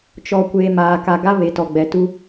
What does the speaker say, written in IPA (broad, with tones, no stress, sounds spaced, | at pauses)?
t͡ʃ ɔ˨ kʷ eː˨ m aː˨ k a˨ ɡ a˦ β e˨ t ɔ˨ ɡ͡b ɛ˨ t u˦